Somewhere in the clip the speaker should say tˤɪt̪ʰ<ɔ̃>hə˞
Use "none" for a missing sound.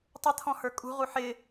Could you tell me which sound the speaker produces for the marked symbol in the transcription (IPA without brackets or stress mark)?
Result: ɔ̃